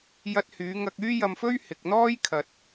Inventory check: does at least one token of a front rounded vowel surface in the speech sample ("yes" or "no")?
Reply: yes